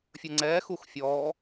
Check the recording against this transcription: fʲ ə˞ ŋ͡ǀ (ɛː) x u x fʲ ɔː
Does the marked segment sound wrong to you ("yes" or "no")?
no